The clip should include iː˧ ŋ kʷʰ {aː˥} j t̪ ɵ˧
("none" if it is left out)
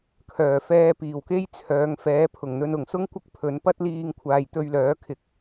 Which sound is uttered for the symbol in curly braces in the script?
aː˨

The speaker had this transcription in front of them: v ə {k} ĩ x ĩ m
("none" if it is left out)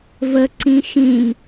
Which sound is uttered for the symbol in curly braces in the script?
ǀ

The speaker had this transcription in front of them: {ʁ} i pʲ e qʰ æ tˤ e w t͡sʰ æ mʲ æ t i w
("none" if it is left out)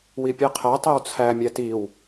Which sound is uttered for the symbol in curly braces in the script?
w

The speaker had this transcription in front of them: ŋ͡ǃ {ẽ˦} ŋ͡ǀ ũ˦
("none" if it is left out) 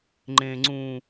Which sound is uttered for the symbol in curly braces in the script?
ẽ˦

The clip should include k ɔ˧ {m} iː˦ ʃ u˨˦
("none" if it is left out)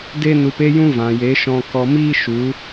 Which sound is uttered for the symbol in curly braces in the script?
m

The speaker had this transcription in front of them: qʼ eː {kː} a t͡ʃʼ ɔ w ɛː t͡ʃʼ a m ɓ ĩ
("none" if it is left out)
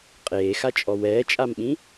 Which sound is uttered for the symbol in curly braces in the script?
x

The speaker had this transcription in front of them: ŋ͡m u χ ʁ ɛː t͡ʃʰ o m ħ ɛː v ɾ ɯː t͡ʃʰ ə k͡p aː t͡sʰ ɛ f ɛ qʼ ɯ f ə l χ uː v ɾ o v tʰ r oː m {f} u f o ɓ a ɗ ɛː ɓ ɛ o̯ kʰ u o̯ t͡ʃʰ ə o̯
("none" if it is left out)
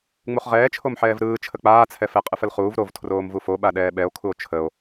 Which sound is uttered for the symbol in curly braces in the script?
v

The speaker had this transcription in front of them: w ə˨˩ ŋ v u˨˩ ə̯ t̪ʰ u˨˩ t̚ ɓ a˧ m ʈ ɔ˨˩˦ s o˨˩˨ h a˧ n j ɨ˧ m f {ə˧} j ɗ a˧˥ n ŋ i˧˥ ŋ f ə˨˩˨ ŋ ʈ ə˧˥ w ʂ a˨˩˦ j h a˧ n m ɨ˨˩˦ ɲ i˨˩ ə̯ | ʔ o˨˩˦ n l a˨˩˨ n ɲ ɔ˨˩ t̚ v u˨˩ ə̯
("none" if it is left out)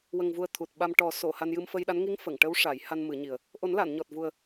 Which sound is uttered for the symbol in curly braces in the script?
ə˧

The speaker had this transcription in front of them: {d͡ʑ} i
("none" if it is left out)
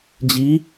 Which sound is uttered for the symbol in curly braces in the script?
d͡ʑ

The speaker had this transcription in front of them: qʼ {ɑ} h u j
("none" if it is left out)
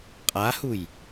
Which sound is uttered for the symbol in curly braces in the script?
a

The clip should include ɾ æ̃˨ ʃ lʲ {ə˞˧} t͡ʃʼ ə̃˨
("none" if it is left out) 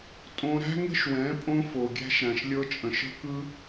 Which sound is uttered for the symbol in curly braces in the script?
ɤ˧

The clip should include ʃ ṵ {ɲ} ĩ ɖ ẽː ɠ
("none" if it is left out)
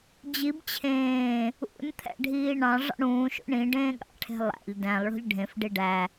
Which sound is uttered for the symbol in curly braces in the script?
ɳ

